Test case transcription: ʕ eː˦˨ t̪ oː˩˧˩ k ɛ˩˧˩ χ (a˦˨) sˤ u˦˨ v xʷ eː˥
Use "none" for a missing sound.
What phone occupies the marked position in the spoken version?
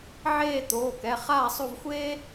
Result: aː˦˨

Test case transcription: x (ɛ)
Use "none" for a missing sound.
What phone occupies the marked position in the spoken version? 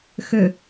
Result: ø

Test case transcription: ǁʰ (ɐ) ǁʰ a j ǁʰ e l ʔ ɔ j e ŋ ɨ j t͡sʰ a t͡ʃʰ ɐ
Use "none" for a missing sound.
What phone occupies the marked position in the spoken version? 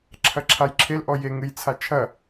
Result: ɐ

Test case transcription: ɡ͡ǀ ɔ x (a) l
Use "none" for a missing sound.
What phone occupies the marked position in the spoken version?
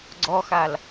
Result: a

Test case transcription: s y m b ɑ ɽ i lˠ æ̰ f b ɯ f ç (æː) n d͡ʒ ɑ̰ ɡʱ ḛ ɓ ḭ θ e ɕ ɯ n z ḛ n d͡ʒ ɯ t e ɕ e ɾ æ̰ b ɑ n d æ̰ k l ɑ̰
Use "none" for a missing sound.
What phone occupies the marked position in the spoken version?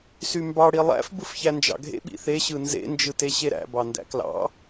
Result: æ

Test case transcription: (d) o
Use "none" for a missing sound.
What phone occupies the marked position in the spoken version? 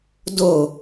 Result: d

